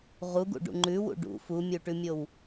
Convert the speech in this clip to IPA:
ʁuɡṵɖṵ ŋ͡ǃʉwṵ ɖṵ fumʲuʈʉmʲow

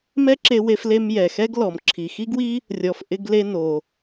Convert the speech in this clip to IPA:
mɛ˥ǁe˧ we˧fle˧m jɛ˩xɛ˥ɡlɔ˩m ǁʰi˩xi˥ɡwi˥ | rʲɔ˩fʔɪ˧ɡ le˧ no˩

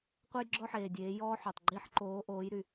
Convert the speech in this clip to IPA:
qʷe˥jɡ͡ǁɔ˥ħeː˩dʲeː˩˧ jɔː˥ħø˩tˤɡ͡ǃi˥ħǃoː˧˥ ʔoː˧˥jɾy˩

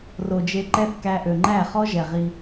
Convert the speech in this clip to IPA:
ro˨d͡ʒe˧ǃɛ˦θkæ˧ ʔø˨ŋ͡ǃæ˦˨χɔ˦ʒɛ˨ ʁi˧

